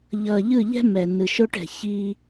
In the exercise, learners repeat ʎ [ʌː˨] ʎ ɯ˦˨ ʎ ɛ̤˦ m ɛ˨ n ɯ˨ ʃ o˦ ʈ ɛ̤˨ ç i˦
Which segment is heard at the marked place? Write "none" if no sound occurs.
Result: ʌː˨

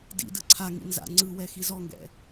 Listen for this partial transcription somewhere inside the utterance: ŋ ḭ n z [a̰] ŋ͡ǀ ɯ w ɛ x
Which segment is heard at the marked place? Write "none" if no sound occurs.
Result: a̰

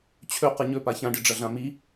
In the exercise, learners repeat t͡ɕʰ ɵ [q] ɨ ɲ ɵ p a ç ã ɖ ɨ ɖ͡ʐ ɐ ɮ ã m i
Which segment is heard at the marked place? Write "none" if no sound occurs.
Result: q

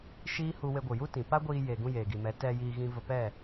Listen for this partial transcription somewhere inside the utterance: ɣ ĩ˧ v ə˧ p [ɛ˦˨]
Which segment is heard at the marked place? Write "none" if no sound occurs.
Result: ɛ˦˨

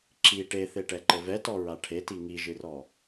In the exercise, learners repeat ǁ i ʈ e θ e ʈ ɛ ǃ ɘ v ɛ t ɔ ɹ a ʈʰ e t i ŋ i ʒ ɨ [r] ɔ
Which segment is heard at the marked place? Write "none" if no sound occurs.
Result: r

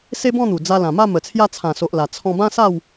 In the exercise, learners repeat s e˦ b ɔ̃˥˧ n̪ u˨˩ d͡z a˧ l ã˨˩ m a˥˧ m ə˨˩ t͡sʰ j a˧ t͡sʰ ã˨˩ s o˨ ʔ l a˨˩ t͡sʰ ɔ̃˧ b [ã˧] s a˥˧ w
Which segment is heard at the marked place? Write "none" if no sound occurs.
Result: ã˦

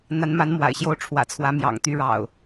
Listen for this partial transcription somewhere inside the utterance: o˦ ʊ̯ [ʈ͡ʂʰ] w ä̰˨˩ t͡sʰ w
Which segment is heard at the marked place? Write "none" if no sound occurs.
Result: ʈ͡ʂʰ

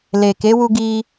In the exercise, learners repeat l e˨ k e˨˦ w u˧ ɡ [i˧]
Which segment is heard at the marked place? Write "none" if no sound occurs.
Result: i˧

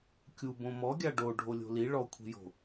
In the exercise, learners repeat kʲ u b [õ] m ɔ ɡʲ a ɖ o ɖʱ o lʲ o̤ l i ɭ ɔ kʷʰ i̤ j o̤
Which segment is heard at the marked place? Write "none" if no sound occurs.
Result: õ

